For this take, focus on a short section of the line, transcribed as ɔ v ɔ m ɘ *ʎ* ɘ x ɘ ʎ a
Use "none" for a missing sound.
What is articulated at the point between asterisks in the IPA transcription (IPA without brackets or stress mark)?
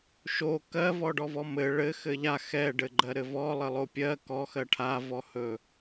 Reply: ɭ